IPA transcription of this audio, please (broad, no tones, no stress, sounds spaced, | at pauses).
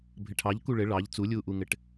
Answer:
bʱ ɘ ʈʰ ɑ ʎ k u ɭ ɘ ɭ ɑ ʎ t͡s u lʲ uː ʔ u ŋ ɘ ʈ